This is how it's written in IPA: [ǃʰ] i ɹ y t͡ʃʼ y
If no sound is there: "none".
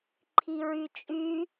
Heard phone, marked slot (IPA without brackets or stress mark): ǃʰ